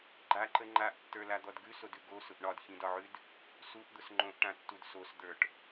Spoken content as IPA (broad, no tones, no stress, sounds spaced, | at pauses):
ɡ͡ǃ a ǃ ə ŋ͡ǃ a ʔ tː ə˞ l a d̪ ɔ d ɡ ʉ s o d ʉ ɡ o s ʊ ʔ ɳ ɒ d ç ĩ d ɒ ʕ ʉ d | s u ʔ d̪ ʊ s ŋ͡ǃ õ ʔ ʈ ã tː u d s o s d̪ ə˞ ʈ